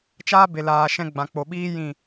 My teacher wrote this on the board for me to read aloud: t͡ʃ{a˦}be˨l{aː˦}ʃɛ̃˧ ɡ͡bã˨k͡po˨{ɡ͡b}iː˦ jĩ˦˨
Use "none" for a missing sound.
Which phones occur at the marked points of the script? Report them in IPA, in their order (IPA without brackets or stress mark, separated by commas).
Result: aː˦, aː˨, ɓ